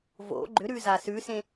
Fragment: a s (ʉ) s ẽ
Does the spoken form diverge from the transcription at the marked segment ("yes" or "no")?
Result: no